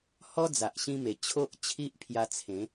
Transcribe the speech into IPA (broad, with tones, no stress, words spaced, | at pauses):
hɔ˦ d͡za˨ʔɕĩ˧me˨˩ t͡ɕʰo˦ʔt͡ɕʰi˦ʔpʰja˧t͡sʰẽ˨˦